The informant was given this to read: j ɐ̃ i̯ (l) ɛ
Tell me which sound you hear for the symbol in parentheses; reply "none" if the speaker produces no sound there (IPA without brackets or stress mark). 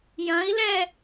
l